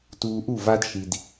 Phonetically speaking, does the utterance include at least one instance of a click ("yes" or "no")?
no